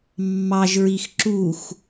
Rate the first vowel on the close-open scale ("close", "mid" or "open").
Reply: open